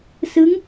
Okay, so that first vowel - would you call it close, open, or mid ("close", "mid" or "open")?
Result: close